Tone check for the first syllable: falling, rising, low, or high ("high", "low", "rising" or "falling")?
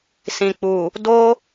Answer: low